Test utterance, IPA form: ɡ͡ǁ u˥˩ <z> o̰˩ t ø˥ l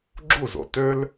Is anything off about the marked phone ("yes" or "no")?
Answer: no